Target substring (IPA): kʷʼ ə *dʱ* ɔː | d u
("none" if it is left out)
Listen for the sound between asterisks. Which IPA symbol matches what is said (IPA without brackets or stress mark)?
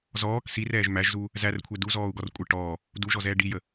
ʈ